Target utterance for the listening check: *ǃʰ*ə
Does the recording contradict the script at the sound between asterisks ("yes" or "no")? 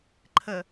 no